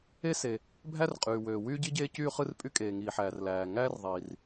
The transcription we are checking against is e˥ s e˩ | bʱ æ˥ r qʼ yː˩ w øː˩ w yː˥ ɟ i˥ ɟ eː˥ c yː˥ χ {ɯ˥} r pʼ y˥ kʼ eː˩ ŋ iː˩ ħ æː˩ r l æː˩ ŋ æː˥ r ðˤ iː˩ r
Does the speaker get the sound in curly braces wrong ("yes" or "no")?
no